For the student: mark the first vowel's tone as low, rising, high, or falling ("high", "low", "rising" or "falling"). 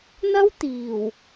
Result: high